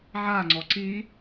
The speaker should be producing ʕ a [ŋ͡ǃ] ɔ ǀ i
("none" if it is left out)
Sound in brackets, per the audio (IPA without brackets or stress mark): ŋ͡ǀ